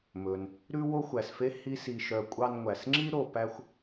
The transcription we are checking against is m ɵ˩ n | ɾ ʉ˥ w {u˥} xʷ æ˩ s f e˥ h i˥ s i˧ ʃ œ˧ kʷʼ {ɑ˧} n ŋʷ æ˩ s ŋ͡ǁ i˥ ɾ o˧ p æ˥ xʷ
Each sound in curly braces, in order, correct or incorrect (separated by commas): incorrect, correct